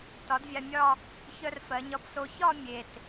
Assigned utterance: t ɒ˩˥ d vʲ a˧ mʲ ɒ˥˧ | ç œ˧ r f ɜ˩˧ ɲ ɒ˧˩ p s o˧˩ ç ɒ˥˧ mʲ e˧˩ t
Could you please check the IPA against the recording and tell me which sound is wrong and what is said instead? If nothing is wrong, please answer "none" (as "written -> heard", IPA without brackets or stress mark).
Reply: none